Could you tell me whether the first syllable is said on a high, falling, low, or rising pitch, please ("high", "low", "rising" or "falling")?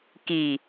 low